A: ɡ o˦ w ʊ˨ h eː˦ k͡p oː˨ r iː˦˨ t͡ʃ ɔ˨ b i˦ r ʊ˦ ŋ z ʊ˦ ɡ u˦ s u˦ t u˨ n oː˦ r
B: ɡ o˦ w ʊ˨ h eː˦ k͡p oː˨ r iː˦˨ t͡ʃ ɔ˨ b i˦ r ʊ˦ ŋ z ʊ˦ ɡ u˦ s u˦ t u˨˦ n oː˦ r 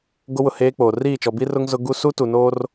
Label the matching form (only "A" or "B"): A